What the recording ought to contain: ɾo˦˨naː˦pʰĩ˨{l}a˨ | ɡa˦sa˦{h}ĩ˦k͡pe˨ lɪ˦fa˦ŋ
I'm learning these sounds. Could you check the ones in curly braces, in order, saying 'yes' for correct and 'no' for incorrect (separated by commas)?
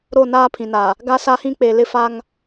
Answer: no, yes